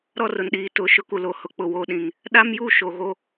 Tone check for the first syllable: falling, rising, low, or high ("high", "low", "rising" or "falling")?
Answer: falling